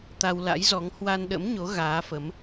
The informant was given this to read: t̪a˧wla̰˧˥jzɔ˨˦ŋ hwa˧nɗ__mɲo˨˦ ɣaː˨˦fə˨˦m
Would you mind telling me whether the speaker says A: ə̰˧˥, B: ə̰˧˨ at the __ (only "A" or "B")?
A